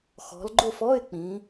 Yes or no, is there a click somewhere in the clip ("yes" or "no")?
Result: yes